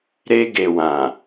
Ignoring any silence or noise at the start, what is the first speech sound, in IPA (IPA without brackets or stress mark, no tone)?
ɾ